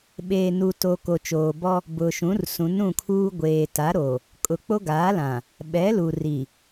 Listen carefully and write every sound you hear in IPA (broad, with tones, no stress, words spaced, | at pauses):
ɓeː˨nu˨to˨ ko˨t͡ʃoː˨bɔ˦ | bʊ˨ʃũ˨˦r sũ˨˦nũ˦˨kʰuː˦ ɡʷeː˨ta˨˦ɾo˨ | kʼʊ˨ k͡po˦ɡaː˨˦lã˨ | ɓɛ˨˦lu˨ ri˨